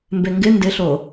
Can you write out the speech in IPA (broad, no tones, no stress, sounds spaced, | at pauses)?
m b e ŋ ɡ ɪ n d ɪ ɬ o